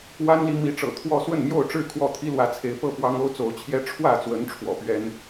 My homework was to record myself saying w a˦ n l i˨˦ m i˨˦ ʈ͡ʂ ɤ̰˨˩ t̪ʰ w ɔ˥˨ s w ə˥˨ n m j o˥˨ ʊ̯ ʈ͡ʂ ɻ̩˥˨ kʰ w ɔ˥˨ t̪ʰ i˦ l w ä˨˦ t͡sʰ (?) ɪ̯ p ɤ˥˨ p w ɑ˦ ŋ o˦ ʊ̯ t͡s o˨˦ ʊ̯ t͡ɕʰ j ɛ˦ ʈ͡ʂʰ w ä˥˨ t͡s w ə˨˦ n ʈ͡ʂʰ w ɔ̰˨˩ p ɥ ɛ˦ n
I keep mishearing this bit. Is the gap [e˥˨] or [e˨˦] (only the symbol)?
e˨˦